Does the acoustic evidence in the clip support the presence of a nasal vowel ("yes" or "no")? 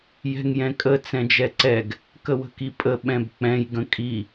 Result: yes